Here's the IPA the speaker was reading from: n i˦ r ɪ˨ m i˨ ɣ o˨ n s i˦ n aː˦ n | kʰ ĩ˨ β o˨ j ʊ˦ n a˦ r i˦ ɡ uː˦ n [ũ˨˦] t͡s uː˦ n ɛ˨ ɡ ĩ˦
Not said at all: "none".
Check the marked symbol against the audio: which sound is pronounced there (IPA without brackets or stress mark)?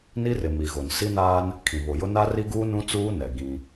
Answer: ũ˦